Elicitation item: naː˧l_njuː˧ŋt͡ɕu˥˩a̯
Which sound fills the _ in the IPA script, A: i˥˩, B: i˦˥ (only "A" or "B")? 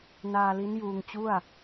B